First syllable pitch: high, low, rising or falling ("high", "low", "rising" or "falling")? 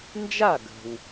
falling